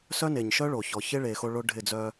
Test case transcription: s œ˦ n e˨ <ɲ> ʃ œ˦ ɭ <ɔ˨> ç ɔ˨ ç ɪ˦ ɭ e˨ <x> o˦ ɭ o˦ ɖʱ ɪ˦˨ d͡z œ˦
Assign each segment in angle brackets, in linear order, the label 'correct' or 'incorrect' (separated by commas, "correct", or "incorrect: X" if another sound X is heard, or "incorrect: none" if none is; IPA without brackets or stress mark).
correct, incorrect: o˨, correct